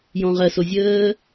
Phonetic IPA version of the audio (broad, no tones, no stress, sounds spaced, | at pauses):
j ɔ̃ ʁ ɜ s o zʲ əː